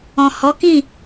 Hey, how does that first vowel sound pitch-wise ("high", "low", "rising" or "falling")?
low